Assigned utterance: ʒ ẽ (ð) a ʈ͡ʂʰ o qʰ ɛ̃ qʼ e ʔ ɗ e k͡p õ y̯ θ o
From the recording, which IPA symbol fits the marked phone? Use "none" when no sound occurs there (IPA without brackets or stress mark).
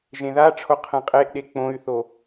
ð